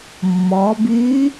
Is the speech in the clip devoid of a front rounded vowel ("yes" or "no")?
no